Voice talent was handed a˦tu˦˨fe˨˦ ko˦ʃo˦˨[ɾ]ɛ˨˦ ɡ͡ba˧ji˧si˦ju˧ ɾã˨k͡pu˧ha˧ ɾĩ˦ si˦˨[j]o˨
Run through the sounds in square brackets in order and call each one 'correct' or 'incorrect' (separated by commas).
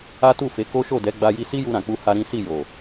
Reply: incorrect, correct